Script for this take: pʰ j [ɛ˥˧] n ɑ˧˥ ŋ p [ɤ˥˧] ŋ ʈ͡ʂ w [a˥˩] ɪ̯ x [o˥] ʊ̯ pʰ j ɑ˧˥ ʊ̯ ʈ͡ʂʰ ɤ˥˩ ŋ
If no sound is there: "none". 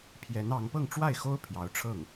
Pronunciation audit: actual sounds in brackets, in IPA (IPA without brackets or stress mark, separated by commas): ɛ˧˥, ɤ˥˧, a˥˩, o˥